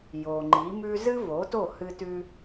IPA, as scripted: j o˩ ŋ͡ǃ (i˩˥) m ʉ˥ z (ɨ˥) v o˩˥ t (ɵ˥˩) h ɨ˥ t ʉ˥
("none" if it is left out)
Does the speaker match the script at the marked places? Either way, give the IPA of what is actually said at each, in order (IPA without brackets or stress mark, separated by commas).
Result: i˩˥, ɨ˥, o˥˩